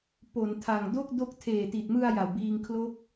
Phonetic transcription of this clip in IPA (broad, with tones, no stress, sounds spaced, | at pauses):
p o˩˦ n tʰ a˨˩ ŋ d o˥˩ k̚ d o˦˥ k̚ tʰ eː˨˩ t i˨˩ t̚ m ɯ˧ a̯ j a˨˩ w b iː˧ ŋ kʰ l o˦˥ k̚